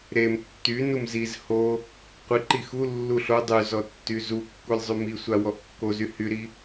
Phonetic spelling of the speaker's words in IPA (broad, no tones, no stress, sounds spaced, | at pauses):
ɾ e m tː y n u m z i z h o | qʷ i ǃ i x u lː u ɬ o dˤ y z ɔ tː y z u kː u lʲ zˤ y m i sʷ a w ɔ ʔ kː o z y h y ɾ i